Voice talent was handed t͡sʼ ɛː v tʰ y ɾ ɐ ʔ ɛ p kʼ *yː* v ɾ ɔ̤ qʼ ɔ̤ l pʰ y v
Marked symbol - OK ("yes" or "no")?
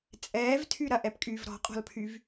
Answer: yes